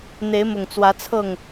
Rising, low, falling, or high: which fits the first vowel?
rising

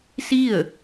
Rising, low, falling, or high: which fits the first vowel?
falling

